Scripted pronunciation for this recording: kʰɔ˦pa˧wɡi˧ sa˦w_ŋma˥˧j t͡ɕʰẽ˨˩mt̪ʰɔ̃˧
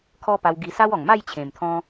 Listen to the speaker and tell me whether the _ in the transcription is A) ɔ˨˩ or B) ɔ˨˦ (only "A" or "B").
A